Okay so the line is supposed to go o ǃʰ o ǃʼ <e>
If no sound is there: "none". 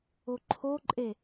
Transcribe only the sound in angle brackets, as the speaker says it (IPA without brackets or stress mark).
e